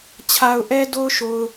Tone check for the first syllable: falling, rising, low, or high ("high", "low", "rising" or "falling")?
low